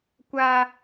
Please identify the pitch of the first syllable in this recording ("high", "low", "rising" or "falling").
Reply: high